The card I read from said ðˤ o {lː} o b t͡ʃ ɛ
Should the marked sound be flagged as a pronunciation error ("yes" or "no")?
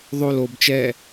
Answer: yes